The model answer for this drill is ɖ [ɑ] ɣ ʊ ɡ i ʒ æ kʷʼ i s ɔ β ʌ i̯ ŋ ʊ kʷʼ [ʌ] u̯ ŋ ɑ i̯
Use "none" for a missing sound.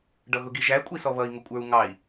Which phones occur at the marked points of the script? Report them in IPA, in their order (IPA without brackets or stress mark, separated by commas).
ʌ, ə˞